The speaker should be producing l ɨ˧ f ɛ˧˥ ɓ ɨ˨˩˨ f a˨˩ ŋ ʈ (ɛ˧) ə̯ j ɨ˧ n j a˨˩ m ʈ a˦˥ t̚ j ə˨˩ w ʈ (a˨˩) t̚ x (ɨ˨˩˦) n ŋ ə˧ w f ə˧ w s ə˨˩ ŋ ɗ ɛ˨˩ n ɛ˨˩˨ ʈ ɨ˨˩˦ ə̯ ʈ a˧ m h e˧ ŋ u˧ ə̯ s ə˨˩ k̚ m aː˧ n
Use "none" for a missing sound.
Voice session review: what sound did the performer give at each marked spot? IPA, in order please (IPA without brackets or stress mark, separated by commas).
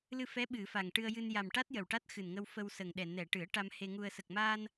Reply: ɨ˧, a˦˥, ɨ˨˩